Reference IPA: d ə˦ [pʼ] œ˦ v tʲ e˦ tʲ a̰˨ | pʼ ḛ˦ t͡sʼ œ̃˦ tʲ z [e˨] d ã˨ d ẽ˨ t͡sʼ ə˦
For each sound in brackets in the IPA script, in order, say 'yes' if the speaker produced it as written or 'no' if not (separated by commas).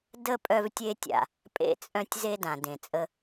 yes, no